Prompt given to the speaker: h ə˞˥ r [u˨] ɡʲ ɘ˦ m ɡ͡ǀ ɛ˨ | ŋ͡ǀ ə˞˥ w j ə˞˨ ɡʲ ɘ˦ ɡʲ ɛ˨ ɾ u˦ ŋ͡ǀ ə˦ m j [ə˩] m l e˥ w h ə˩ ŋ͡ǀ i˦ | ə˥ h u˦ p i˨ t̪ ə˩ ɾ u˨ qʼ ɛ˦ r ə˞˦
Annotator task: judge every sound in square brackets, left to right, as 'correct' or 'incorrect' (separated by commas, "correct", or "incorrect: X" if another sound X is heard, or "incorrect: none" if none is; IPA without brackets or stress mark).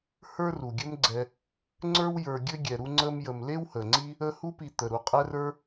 incorrect: u˩, incorrect: ə˨